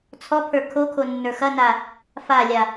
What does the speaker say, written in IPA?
t͡sʰɔpʰə˞ kʰokʰonːə˞ xɐna | falʲa

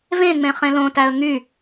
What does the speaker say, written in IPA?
vẽŋ͡mẽ χẽlõtæə̯ ŋy

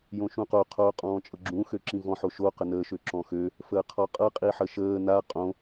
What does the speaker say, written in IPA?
jõʃũqo qʰoːqʼɔ̃ːt͡ʃʼɤɡ͡ǁũ xøǁĩvɔ̃ ħoʃo qənəː ʃøǁɔ̃xø | fəːqʰɔqʼɤ qʼiħəʃəː na qʼõ

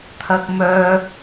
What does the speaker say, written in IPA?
t̪ʰɐ˥k̚ mœː˥

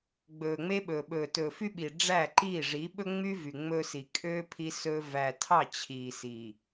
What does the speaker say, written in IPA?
ɡ͡bɵː˨ŋ͡me˦ɓɵː˨ɓɵː˨ tɵː˨fy˦ɓi˨ ɖ͡ʐæ˦˨ ǃiː˦˨ʐi˨˦ ɓɵ˦ŋ͡my˦ vy˨ŋ͡mɵː˦si˨ kʼøː˦ pʰi˦sɵː˦ væ˨tʰɑ˦˨ t͡ɕʰiː˨si˨

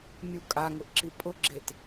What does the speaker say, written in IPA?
mʲu kʼaŋʊʔǁi pʼʊɡ͡ǁet

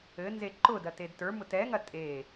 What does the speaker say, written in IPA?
ɘnze ǃʊdɐted tə˞mʊt ɛŋɐ tʼe

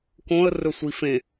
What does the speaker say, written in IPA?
kõə̯rɵ sʷifẽ

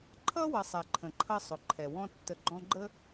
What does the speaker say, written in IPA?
ǃʰʌ˥wʌ˨sˤɛ˩ ǃʰə̃˩ǃʰʌ˦ sˤʊ˩ǃʰɛ˩wɔ̃˦ tːə˨ɡ͡ǃɔ̃˦ɡ͡ǃə˥

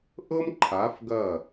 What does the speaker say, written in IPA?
ʔɤ˦m ǃʰa˨˦fɡɐ˦˨

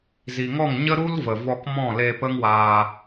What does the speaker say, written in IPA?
zi˨ŋɔ˦˨ŋ ɲə˦ɾu˦lvə˨ vɔ˧kmɔ̃˦˨le˧ pə˦ŋwaː˧

